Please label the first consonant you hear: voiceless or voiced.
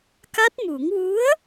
voiceless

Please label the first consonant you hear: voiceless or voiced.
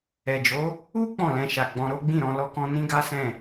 voiced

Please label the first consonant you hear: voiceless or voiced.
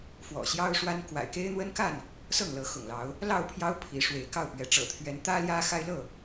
voiceless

